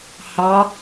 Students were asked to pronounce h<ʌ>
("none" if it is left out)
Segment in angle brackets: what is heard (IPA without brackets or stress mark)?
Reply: ɑ